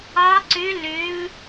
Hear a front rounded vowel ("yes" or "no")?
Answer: yes